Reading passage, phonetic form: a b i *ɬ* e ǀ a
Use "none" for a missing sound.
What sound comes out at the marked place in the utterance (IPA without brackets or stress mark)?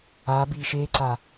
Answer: ʃ